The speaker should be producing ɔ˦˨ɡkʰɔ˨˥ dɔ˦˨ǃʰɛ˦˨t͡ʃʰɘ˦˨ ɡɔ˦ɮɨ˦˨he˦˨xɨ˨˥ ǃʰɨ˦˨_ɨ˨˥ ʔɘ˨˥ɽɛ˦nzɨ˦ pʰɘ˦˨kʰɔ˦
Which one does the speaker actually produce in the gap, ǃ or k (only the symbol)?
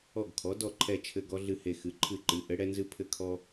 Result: ǃ